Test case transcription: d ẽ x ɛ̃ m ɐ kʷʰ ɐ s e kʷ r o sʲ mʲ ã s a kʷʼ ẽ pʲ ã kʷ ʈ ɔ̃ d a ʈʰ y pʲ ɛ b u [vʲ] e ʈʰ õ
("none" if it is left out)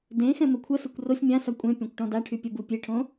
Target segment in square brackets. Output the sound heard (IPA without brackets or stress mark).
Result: pʲ